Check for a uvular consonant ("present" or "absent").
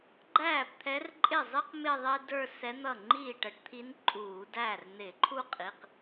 present